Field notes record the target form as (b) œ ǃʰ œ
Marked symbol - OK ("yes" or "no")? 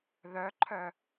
no